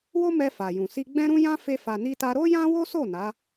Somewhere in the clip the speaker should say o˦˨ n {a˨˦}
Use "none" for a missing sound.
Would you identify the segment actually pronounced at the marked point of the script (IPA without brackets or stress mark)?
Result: a˨˦